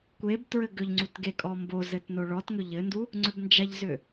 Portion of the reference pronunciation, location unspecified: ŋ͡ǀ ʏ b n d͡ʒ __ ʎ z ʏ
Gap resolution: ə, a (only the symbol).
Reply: a